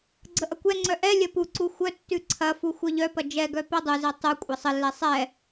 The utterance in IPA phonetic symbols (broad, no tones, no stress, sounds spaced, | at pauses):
ɡ͡ǀ ə ʔ ɐ kʷ ɛ ŋ͡ǀ œ ʔ ɛ lʲ ɐ p u ǀ u xʷ œ tː ʉ ǀʰ ɐ f u xʷ œ ʎ œ p ɐ d͡ʒ ɛ ɡ œ p ɛ dˤ u z ɛ tˤ u kʷʼ ɐ sˤ ə lː ɛ sˤ ɛ